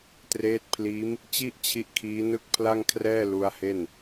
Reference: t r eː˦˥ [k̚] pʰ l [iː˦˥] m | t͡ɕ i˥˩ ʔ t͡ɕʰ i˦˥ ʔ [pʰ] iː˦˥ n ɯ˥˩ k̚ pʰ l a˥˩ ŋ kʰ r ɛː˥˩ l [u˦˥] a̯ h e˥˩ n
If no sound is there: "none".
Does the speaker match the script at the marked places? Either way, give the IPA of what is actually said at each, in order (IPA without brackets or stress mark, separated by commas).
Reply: t̚, iː˦˥, kʰ, u˦˥